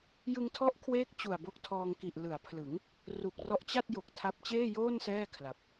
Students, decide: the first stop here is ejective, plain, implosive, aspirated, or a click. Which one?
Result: aspirated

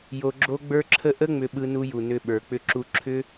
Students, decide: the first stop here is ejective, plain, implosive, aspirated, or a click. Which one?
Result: click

